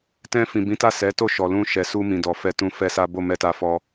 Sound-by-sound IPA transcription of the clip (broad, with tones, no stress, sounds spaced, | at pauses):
t ɛ̃˧ f ĩ˨ b ĩ˨˦ t a˦˨ s ɛ˨˦ t o˦˨ ʃ ɔ˨ l ũ˧ ʃ ɛ˨ s u˧ m ĩ˨ d ɔ˨ f ɛ˧ t ũ˧ f ɛ˦ s a˦ b o˦˨ m ɛ˧ t a˧ f ɔ˧